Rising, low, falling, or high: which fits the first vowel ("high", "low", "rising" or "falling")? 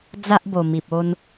high